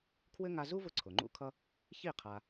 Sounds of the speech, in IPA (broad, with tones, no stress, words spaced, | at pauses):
kʰwɘ˥ ŋa˧zu˥vʊ˧ ǀʰʊ˩ ŋ͡ǃṵ˥kʰʌ˥ | çi˥˩ qʰa˧